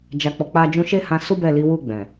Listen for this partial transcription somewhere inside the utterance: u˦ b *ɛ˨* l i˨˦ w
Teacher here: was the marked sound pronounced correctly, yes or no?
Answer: no